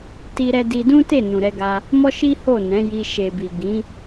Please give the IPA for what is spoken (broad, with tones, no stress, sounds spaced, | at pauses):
t i˦ ɾ ɛ˦ d i˧ d ũ˦ t e˦˨ n ũ˨ ɾ ɛ˧ ɡ a˧ | m ɔ˦ ʃ i˦ h o˦˨ n ɛ̃˨˦ j i˧ ʃ e˨ b i˨ ɡ ĩ˨˦